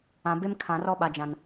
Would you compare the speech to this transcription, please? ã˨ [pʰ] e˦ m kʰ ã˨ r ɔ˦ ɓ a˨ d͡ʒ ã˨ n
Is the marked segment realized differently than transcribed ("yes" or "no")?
yes